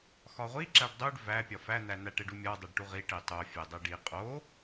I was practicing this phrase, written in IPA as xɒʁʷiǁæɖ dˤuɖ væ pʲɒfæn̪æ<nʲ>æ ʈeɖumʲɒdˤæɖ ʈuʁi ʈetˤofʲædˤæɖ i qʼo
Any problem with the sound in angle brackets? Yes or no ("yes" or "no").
yes